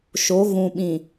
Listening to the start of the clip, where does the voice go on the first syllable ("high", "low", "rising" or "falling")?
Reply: rising